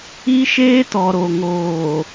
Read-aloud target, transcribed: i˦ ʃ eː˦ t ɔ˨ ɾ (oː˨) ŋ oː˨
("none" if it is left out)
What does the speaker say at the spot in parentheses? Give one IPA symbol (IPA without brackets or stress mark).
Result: o˨